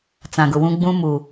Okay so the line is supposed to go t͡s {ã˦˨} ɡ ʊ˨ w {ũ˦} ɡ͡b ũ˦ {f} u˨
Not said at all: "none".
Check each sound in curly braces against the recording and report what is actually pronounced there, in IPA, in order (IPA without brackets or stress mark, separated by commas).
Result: ã˨, ũ˦, m